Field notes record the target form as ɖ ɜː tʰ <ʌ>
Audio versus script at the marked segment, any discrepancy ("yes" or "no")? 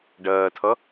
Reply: no